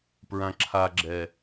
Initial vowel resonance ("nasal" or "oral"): nasal